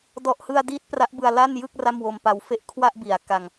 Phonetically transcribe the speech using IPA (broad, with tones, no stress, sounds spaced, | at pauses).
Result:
d ɔ˨˩ ʔ h ɯ˧ a̯ d iː˦˥ t̚ p r a˦˥ ʔ b ɯ˧ a̯ l a˥˩ n j ɯ˥˩ k̚ r a˥˩ m w o˧ m p a˧ w f e˦˥ ʔ kʰ w a˥˩ ʔ b i˩˦ a̯ k a˧ ŋ